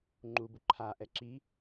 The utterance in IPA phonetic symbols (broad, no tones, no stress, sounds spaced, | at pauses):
ŋ͡ǃ u b u ǃʰ a ʔ ɛ ǁ i